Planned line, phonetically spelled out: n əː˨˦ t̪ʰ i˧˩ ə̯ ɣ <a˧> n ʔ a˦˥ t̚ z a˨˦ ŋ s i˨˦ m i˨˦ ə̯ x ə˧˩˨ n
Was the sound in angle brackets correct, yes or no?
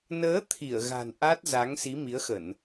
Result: no